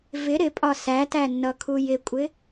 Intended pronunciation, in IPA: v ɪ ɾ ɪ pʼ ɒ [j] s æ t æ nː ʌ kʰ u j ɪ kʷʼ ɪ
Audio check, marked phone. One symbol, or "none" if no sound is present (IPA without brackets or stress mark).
none